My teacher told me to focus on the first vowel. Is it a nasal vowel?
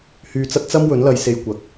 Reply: no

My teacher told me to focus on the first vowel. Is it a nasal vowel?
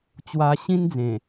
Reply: no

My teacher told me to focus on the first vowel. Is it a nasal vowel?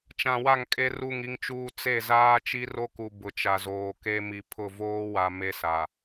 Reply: yes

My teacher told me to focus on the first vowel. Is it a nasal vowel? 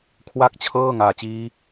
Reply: no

